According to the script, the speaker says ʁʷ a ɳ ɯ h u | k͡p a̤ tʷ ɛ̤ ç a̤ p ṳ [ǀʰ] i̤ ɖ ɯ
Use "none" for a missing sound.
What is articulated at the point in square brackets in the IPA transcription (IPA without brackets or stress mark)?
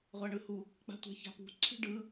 ǀʰ